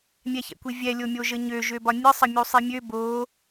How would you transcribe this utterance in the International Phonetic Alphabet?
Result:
mʲ ɛ ç ɛ̰ kʷ i vʲ ɛ lʲ o mʲ o ʒ ə ɲ ø ʒ ø b ɒ nʲ ɨ sˤ ə mʲ u sˤ i mʲ ø b o

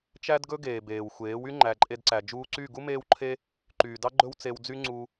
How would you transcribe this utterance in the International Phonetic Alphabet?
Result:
t͡ʃ æ˦ d ɡ ɵ˦ ɡ eː˨ b eː˨ w xʷ eː˨˦ w y˦ ŋ͡ǃ æ˨ ǃʼ e˧ d ǀ æ˨ d͡ʒ uː˧ ǀ y˦˨ ɡ u˦ m eː˦ w ǃʰ e˦ | ǃ yː˨ d ɑ˦ ɡ͡ǃ ɵ˦ w t͡s e˧ w d͡z y˦ ŋ͡ǀ u˧

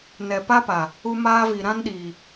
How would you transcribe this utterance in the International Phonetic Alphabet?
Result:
n ɛ˨ p a˦ p a˨ | u˧ m aː˧ v i˨ ɾ ã˧ n ɗ iː˨

